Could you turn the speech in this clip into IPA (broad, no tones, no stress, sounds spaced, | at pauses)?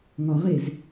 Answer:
ŋ ɒ ʁ e z